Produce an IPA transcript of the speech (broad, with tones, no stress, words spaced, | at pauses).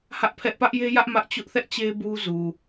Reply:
hä˦ʔpʰɛ˦ʔ pä˦ʔje˦jä˦ʔ mä˦ʔ t͡ɕʊ˦ʔθɛ˦ʔ t͡ɕe˦ bu˦zu˨